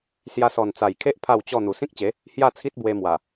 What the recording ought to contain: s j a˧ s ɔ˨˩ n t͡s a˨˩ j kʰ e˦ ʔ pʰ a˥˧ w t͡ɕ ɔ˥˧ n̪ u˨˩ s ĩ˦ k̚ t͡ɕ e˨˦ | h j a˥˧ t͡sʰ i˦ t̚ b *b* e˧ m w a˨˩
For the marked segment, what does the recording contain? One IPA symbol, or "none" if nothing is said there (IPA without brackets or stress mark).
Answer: w